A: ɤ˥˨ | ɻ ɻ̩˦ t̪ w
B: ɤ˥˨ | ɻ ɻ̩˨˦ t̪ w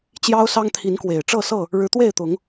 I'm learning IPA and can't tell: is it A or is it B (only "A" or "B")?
B